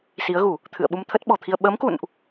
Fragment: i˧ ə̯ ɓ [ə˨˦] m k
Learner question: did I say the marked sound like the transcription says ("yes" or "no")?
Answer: yes